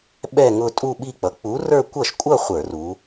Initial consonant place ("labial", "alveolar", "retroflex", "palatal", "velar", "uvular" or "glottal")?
labial